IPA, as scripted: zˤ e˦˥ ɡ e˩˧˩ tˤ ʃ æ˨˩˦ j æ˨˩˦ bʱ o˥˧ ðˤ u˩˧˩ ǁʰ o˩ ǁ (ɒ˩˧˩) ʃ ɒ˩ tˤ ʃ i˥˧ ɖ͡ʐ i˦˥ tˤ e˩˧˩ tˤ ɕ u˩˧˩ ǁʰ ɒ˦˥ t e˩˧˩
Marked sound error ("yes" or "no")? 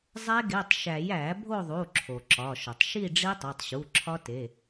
no